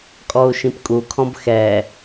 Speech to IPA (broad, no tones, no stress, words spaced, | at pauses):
kʼɔu̯ʃĩpkʼu kʰɔ̃bxɛ